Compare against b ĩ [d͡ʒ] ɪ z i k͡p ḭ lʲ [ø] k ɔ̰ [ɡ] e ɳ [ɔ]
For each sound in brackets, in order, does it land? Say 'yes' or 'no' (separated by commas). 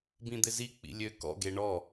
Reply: no, yes, yes, yes